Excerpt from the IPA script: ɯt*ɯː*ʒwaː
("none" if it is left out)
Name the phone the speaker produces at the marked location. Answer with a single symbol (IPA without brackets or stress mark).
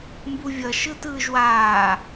ɯː